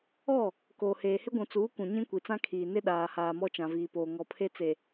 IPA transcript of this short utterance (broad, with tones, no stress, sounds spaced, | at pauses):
ɔ˦˨ | k oː˨ h eː˨ h ɪ˦ ɡʷ ũ˨ t͡s uː˨˦ k ũ˨ ɲ ĩ˦ kʷ i˨ t͡s ã˦ kʰ iː˨ n ɪ˦ ɗ aː˨ h aː˨ m ɔ˦ t͡ʃ ã˨ v iː˨ p oː˨ ŋ ɔ˨ pʰ e˦ t͡s e˨